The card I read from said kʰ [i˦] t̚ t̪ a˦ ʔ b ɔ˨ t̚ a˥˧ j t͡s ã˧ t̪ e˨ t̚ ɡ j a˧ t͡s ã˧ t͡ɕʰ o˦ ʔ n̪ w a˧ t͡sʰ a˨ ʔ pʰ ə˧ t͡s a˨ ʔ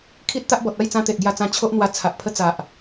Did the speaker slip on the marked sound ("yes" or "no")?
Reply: no